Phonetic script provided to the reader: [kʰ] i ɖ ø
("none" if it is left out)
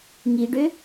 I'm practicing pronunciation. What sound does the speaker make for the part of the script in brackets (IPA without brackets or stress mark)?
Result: ŋ